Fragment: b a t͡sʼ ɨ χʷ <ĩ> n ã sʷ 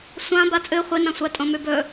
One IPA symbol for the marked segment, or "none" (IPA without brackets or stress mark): i